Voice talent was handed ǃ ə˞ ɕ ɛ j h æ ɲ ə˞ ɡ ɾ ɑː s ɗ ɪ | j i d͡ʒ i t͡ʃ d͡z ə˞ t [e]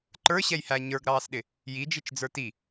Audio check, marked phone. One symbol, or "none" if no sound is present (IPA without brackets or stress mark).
i